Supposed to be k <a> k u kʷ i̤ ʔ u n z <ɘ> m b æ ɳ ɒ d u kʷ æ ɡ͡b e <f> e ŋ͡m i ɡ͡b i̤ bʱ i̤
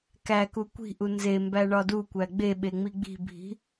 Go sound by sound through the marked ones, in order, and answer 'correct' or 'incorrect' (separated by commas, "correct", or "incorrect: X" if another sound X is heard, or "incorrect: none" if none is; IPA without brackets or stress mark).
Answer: incorrect: æ, incorrect: e, incorrect: ɓ